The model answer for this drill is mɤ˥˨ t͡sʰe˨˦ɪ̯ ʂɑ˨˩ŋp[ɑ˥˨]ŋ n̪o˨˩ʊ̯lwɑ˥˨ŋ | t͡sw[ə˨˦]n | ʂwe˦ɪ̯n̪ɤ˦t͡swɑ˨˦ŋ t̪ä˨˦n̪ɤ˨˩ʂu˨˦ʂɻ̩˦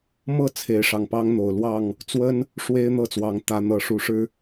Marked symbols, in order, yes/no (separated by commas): no, no